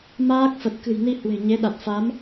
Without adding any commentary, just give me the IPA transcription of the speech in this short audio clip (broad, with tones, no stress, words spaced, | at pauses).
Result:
maː˦˥k̚fə˨˩t̚ kɨ̤˨˩jni˧ hwe̤˨˩ɲe˨˦ɗa˨˩t̚ fa˨˦m